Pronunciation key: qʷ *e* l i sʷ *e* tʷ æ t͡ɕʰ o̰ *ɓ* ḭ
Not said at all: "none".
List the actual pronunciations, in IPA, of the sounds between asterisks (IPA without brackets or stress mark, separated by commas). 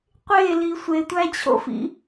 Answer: e, e, f